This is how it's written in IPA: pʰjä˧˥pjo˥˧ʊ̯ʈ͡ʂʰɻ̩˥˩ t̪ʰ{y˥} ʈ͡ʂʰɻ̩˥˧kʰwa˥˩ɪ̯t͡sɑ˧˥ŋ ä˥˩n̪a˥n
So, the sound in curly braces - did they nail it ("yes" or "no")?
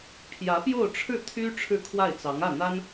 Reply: yes